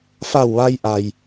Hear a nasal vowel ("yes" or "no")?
no